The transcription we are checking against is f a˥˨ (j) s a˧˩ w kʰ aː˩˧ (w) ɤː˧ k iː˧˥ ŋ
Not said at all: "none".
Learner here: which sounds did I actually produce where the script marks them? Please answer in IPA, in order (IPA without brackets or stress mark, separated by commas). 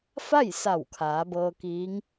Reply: j, b